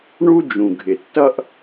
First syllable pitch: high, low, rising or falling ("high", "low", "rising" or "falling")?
high